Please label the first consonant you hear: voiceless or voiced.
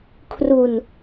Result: voiceless